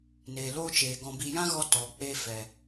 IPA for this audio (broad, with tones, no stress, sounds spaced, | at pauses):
n eː˨ l oː˦ t͡ʃ eː˨ ɡ ɔ̃˧ b i˧ j ã˦ ɣ ɔ˧ t ɔ˨ k͡p e˧ f ɛ˨